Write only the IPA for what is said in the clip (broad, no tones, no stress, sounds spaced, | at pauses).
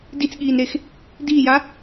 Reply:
d i t͡s ɠ iː n ɾ e x | d iː j a